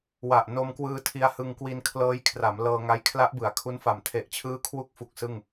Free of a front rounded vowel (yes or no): yes